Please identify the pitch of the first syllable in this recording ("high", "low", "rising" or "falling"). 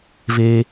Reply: high